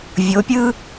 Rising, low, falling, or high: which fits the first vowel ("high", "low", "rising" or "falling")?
rising